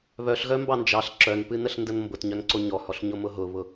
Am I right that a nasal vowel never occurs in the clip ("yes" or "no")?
yes